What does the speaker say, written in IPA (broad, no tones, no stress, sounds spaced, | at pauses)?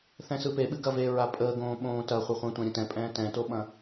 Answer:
θ ɛ̃ s ɯ p e ɓ ɨ ɡ ɐ v e ɹ a pʼ əː ɡ õː ɓ õː t ɐ χʷ ə χʷ ɛ̃ tʷ ɛ̃ ɾʲ ə̃ t ɛ̃ pʼ ɛ̃ː t ɛ̃ t o ɓ ɐ̃